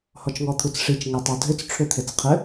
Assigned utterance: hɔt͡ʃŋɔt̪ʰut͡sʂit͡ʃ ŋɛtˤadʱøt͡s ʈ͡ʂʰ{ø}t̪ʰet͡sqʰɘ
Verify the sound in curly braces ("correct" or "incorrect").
correct